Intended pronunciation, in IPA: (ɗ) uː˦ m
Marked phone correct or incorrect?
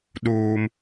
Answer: correct